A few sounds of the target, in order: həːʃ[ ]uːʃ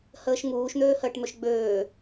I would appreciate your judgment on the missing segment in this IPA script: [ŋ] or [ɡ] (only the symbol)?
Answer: ŋ